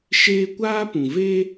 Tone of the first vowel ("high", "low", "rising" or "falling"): high